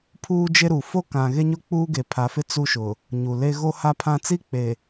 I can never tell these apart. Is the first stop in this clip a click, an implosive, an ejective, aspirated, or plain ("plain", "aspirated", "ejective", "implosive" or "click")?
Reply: aspirated